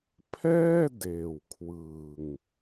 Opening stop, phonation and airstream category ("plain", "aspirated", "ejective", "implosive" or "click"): aspirated